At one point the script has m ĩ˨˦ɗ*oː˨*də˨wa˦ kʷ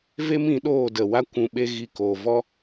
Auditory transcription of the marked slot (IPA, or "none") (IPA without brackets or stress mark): oː˦˨